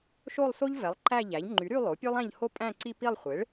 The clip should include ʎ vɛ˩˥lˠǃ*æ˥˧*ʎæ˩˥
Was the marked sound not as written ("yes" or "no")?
no